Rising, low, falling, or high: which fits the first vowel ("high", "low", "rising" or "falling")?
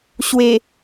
low